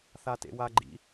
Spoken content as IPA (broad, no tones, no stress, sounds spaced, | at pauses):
θ a t ḛ w a ɡ͡ǃ ḭ